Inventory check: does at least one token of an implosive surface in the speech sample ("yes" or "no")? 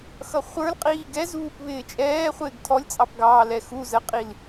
no